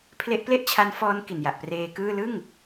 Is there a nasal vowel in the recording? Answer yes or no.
no